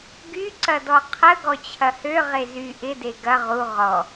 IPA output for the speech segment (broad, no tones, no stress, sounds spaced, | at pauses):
ɡ y ǀ ɐ d ɔ qʰ ə ɡ ɔ t͡ɕʰ ɐ h ø ʁ e z y ʔ ɪ d e ɡ ɐ ʁ u ʁ ɔ